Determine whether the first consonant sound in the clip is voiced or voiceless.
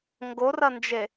voiced